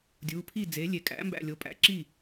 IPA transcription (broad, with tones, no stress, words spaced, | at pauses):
dʲu˩˧˩pʰi˥˩ d͡ze˩˥lʲe˩˥ kʼæ̰˩˥mbæ̰˧˩ lʲo˩˥pʼæ̰˩˥ǁi˥˩